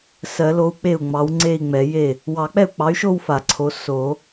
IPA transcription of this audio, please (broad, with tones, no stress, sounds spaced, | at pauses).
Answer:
s ɜ˨˩˦ l o˨˥ u̯ k͡p e˥˩ u̯ ŋ͡m ɑ˨˥ w ŋ͡ǀ e˥˧ i̯ ŋ͡m ɛ˨˩˦ j e˥˩ | w ɑ˨˩˦ k͡p ɛ˥˩ u̯ k͡p ɑ˨˥ y̯ ʃ o˥˧ w f a˨˩˦ ǀʰ o˨˥ s o˨˩˦